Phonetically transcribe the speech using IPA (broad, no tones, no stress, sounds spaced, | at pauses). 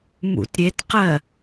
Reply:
m ṵ t ɾʲ e t q ɜ